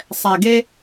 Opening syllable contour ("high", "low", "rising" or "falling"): low